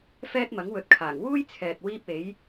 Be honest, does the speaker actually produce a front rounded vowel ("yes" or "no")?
no